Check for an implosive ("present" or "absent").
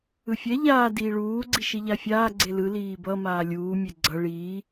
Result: absent